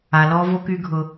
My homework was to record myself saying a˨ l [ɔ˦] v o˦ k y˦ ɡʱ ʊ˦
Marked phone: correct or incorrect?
correct